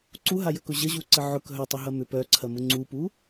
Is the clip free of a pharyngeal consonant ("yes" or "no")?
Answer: no